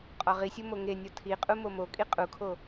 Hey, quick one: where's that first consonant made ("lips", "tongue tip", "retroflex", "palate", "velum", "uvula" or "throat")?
uvula